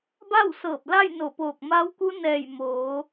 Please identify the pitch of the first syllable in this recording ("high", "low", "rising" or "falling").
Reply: falling